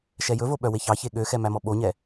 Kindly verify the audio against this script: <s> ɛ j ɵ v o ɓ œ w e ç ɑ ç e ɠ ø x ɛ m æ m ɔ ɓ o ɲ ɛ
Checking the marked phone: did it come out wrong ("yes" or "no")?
yes